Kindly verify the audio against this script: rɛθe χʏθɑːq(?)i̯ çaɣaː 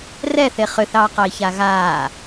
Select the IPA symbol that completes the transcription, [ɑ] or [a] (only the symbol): ɑ